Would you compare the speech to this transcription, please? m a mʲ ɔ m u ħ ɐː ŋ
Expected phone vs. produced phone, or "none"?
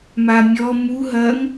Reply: ħ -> ɦ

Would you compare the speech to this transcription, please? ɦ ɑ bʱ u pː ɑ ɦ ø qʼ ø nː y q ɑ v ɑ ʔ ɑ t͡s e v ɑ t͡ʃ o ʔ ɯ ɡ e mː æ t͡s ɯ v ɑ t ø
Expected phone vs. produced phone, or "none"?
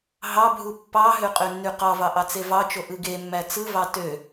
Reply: none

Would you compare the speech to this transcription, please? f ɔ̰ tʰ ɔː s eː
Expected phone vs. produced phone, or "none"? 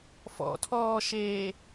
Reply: s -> ʃ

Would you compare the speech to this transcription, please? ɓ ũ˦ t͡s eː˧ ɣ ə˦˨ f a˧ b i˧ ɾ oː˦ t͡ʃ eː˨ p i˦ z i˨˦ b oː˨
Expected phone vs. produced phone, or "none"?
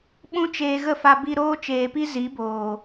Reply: t͡s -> t͡ʃ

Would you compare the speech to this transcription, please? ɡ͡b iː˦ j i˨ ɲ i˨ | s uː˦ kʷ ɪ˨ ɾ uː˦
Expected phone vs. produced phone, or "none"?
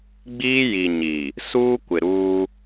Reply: none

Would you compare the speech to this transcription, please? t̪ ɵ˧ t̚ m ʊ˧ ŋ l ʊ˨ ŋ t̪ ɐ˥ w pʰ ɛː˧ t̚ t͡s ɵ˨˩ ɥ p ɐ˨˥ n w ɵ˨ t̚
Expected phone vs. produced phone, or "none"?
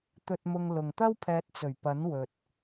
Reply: none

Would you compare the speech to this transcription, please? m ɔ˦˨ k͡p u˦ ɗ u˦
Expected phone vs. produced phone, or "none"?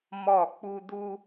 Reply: ɗ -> d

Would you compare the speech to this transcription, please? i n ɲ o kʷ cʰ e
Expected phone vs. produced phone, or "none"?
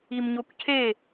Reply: n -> m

